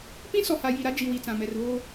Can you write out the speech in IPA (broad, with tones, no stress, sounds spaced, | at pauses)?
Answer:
p ĩ˦ s ɔ˨ h a˨ j i˨ ɾ a˦ d͡ʒ i˨ w i˨ t͡s ã˨ m ɛ˨ r β oː˦